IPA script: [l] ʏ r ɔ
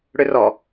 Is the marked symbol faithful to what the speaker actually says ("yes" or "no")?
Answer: no